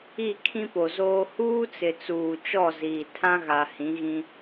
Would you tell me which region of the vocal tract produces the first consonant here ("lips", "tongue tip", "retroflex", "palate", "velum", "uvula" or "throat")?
velum